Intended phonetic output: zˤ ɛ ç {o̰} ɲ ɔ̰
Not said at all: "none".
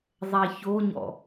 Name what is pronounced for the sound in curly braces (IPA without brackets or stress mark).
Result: o